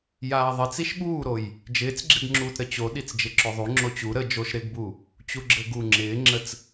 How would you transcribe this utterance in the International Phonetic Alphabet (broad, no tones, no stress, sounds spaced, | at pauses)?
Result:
j aː ðˤ ɪ t͡s i ʃ ɓ uː ɾ o j | d͡ʒ ɪː t͡s ɡ͡ǁ ɪ ɡ ŋ͡ǁ uː t ɾ ə t͡ɕ o ɗ i t͡s d͡ʒ ɪ ǁ o ðˤ u ŋ͡ǁ o t͡ɕ u ɾ ə d͡ʒ o ʃ ɾ ɪ ɡ b u | t͡ɕ u ɡ͡ǁ ɘ ɡ u ŋ͡ǁ ɪː ŋ͡ǁ ə t͡s